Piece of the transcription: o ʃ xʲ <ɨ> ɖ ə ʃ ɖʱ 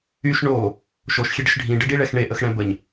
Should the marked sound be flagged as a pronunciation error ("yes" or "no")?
yes